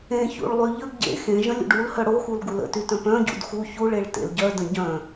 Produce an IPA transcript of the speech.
ẽ ç ṵ ɭ lˠ y ʎ ə ɡ ɟ ḛ x ẽ ʒ ə̃ lʲ ṵ ɖ u l h œ ɽ o x u l ɡ u l ə̰ t y t œ̃ p œ̃ ɟ ṵ d x u ç u ɭ e ɭ t ḛ l ɟ œ d ə̃ ɟ œ̃

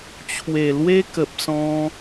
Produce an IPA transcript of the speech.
t͡ɕʰ w e˨˩ l w e˦ k ə˨ p̚ s ɔ̃˧

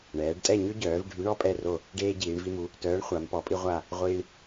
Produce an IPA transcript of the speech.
ɳ ɛː˩˧ ɖ tʼ ɛ˦˨ ɲ ø˦ ɟ œː˩˧ v ɖʱ y˨˥ ɳ ɔ˦ pʼ ɛ˦˨ r o˦˨ | ɖ eː˦ ɟ iː˩˧ ɳ v i˦ m u˨˥ | t œː˨˥ ɳ χʷ a˩˧ m p ɔ˩˧ pʼ i˦ ʁʷ a˦˨ | ʁʷ iː˦ ɳ

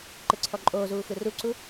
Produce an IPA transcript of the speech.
ǃ ɯ ǀʰ ɔ ǃʼ oː z uː x ɯ r u ǀ u

